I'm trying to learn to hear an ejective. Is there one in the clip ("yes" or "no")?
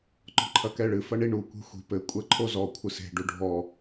yes